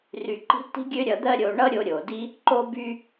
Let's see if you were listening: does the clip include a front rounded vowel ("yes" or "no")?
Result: yes